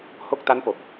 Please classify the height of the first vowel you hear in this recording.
mid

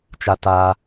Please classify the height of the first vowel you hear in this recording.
low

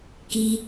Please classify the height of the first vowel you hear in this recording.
high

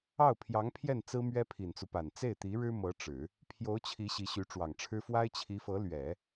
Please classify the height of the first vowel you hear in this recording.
low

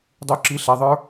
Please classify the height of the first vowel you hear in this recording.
high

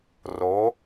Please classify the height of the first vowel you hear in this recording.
mid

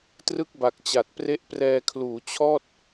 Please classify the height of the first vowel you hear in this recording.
high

